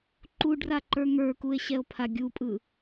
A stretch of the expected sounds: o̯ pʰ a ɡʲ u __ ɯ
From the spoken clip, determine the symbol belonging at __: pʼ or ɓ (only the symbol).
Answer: pʼ